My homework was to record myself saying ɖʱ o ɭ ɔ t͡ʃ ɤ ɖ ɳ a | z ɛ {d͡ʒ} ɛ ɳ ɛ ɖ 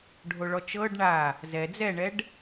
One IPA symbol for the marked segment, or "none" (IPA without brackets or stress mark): d͡z